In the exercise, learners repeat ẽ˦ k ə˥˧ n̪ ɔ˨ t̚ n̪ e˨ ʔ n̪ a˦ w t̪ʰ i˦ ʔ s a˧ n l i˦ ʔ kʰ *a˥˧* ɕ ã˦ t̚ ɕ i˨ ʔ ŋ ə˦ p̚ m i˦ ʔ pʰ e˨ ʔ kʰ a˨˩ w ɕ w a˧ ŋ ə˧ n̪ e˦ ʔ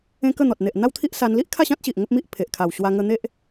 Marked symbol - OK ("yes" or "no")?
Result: yes